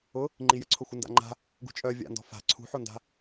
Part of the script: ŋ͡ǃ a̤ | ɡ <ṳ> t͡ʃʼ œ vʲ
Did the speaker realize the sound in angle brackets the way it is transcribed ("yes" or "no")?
yes